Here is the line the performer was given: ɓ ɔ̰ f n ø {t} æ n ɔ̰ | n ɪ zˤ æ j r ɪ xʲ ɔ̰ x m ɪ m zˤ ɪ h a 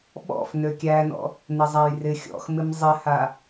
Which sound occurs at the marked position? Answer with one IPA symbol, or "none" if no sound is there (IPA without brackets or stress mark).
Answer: kʲ